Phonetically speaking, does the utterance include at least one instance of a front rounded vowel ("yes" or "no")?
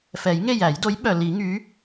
yes